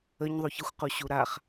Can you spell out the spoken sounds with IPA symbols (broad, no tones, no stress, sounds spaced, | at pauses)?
ə ɲ ðˤ u ç ə xʷ q u ɕ u ɾ a χ